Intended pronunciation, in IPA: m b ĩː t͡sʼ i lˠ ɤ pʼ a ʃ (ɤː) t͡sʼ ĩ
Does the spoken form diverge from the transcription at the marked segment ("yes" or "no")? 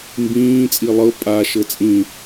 yes